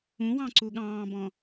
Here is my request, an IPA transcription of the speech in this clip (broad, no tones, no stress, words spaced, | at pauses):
ũwɑ̃ǀu ɠɑ̃ːbɔ̃